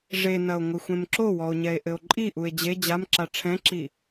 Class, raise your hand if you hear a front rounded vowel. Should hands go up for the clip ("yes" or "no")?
no